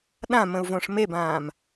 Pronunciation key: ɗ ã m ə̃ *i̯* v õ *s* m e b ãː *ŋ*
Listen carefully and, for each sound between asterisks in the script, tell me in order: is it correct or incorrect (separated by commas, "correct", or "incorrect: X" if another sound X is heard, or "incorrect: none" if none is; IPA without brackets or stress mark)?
incorrect: u̯, incorrect: ʂ, incorrect: m